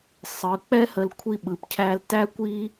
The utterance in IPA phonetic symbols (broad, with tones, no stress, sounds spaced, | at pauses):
sˤ ɯ˩˧ k͡p ɛ˥ h ə˧ l kʷʰ i˥ ɓ ɯ˧˩ p cʰ æ˧ l t æ˥ kʷ i˥